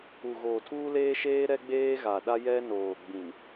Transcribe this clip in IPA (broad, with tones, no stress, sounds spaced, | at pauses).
u˨ ɣ oː˨ tʰ uː˦ l eː˦ ʃ eː˦ ɾ ɛ˦ ɡ͡b eː˦ ɣ a˨ ɗ a˦ j ɛ˦ n oː˨ ɡ͡b ĩ˨ m